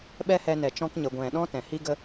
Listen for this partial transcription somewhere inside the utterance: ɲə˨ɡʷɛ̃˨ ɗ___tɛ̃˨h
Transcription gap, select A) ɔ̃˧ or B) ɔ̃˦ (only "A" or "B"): B